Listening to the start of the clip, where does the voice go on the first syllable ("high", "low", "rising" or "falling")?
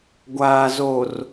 low